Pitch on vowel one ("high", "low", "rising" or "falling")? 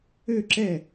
falling